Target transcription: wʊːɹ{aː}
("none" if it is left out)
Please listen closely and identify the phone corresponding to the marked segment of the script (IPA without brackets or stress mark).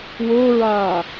aː